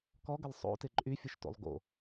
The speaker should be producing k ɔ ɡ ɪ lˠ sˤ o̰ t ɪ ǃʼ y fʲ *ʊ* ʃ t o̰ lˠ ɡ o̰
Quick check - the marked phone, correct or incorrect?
correct